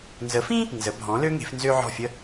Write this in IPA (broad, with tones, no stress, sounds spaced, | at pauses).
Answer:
n z ə˩˥ f ĩ˥ | n z ə˩˥ bʱ ɔ̃˩˥ l ø˥ ŋ e̤˩˥ f n z ø˥ ʕ ɔ̤˥˩ fʲ ə˥